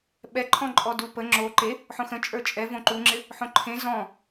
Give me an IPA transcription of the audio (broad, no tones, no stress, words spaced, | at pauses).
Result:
ɓɛ ǃʰɔ̃ǃʼɔdupə ŋ͡ǁo ǃe | ħõxə̃ t͡ʃʼə˞t͡ʃʼɛ võǃuŋ͡ǁɪ | ħõǃʰẽ zɔ̃